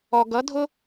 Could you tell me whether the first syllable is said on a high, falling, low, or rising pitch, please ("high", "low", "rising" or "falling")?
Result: low